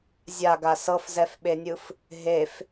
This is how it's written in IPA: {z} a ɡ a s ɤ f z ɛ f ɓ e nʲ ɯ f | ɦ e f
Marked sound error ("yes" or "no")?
yes